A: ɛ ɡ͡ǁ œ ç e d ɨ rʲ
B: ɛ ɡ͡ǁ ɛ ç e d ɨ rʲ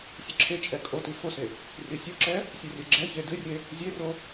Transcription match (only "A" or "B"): B